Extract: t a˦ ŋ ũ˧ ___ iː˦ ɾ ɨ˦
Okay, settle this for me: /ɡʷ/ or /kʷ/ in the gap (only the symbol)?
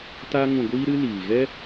ɡʷ